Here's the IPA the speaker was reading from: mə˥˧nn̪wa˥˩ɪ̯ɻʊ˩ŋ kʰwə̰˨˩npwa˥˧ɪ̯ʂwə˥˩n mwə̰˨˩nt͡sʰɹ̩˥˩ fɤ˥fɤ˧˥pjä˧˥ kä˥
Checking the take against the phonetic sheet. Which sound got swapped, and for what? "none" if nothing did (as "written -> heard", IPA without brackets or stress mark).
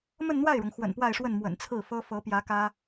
kʰ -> x